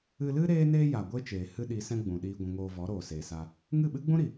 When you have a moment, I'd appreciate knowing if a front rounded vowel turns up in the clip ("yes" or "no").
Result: no